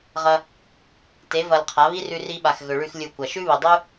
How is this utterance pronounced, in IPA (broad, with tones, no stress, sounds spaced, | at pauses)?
ʁ ɐ˧ | t e˨˦ v ɐ˧ l qʰ a˨˦ β i˦ r ʉ˧ r i˧ ɓ a˨ x ɣ ɵ˨ ɭ ʉ˧ x lʲ u˧ kʷ ɐ˨ ʃ ʉ˦ β ɨ˨ dˤ ʉ˦